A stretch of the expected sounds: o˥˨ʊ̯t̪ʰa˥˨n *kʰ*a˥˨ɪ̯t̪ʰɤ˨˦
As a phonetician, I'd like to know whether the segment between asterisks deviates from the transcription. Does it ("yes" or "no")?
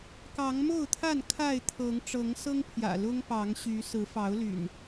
no